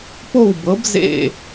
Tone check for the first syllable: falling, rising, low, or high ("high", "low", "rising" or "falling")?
falling